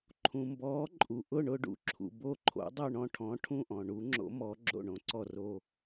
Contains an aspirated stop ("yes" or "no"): yes